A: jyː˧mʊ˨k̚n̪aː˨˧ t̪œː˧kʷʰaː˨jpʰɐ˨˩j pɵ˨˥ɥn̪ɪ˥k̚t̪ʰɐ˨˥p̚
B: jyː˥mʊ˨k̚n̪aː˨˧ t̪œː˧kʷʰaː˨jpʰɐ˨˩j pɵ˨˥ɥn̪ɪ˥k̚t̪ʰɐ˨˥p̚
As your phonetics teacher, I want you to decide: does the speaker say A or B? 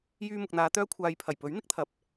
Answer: A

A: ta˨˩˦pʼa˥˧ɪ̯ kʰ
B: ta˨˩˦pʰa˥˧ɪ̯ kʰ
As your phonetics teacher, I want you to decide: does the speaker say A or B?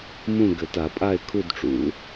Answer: A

